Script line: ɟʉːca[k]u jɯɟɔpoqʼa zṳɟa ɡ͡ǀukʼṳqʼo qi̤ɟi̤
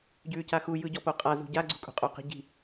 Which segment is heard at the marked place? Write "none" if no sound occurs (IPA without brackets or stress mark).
x